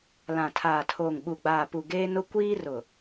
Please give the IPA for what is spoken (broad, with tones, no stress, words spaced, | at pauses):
lã˨tʰaː˨tʰoː˨ŋ ɓu˨ɡ͡baː˨pu˨ ɡeː˦nʊ˦ kʷiː˦rʊ˨